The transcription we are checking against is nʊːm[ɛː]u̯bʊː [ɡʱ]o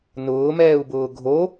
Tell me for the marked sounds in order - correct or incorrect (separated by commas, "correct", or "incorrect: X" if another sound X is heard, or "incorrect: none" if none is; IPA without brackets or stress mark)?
correct, correct